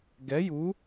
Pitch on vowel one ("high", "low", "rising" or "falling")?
rising